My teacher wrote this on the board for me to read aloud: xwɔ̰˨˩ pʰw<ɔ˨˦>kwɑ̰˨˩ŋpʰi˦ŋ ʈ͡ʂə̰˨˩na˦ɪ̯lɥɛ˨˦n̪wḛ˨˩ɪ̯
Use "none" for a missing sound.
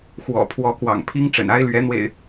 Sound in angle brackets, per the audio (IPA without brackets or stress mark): ɔ˨˦